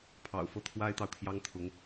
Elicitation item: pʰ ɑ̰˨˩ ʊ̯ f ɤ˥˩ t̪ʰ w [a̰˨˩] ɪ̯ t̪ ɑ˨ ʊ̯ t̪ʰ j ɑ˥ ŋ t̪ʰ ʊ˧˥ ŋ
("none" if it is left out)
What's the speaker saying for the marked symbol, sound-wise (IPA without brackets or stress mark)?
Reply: a˥